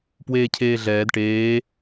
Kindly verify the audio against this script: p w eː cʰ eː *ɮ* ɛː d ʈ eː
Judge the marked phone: correct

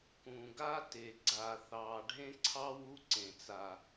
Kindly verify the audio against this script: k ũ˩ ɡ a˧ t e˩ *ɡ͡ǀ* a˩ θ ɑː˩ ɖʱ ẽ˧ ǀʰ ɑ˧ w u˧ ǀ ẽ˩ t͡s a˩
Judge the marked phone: correct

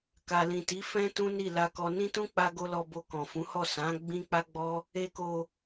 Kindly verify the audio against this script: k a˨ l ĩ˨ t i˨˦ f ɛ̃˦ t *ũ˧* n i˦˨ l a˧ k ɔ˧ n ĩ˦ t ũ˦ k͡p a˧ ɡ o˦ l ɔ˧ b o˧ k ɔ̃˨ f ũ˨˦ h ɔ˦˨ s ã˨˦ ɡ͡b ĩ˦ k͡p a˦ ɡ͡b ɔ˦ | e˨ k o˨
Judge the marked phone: incorrect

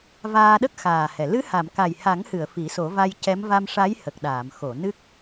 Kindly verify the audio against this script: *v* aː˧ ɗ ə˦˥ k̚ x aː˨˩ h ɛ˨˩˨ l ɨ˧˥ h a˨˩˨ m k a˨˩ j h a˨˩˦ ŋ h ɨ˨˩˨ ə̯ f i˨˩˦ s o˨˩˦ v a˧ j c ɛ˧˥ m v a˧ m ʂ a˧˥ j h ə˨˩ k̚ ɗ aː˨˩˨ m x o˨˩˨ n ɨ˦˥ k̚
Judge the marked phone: correct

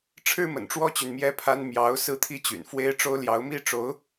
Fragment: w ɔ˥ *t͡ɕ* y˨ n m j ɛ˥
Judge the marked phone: correct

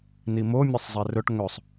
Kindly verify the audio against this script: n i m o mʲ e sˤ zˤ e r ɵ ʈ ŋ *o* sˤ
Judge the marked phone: incorrect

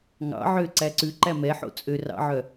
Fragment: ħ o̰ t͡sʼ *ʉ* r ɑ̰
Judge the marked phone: incorrect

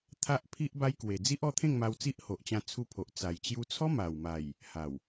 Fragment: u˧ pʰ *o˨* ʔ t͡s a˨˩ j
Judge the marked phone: correct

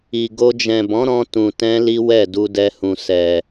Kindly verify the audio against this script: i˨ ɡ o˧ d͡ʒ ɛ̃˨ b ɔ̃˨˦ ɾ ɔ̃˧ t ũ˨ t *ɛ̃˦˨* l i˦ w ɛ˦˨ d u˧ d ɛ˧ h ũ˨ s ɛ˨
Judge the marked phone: incorrect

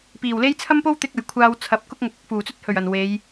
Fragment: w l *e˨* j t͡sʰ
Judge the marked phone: incorrect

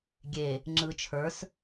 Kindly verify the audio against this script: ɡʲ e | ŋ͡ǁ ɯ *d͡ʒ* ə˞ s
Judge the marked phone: incorrect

